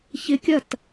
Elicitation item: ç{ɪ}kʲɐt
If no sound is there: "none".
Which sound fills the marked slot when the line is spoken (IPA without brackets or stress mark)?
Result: ɪ